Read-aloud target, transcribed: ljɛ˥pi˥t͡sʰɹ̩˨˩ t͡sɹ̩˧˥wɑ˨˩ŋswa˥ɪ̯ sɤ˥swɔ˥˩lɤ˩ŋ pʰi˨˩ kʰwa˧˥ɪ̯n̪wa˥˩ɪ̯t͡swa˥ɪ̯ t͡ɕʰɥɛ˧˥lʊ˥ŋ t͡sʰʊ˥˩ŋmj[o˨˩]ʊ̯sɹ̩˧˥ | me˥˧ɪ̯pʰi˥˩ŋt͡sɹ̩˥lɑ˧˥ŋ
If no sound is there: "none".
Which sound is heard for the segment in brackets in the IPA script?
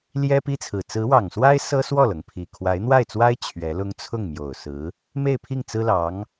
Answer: o˨˩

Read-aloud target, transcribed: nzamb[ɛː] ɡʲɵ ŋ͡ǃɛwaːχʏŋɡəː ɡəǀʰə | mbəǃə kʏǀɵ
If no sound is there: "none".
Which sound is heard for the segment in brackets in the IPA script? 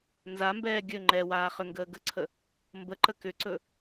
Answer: ɛː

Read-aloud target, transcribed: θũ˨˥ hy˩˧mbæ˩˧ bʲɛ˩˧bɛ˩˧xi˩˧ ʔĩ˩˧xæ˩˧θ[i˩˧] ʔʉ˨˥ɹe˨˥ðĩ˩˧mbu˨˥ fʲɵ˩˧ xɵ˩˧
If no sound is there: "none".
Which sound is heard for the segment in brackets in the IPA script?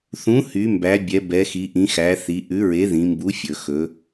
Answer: i˩˧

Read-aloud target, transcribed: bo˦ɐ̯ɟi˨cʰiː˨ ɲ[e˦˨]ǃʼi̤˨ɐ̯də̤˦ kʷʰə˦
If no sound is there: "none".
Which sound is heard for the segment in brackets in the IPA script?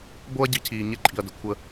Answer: e˦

